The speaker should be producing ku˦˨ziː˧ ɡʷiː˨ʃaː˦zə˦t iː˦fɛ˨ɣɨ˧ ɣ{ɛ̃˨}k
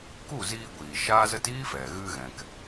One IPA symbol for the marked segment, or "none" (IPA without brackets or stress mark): ɛ̃˨